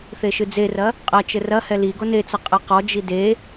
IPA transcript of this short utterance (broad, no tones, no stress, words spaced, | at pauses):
θeʃɨd͡zerɐ | qʼɐ t͡ʃɘrɐhɛ li ɡonet͡sɐ qʼɐqɔd͡ʒi de